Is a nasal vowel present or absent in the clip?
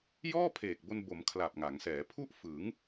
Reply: absent